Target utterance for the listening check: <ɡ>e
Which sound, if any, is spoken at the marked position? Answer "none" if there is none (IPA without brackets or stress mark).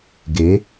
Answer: ɡ